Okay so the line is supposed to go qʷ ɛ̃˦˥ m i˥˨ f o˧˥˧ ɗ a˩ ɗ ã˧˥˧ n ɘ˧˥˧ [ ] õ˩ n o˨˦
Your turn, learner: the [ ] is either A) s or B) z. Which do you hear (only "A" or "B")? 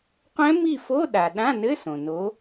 A